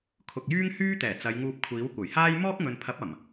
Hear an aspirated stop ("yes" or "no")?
yes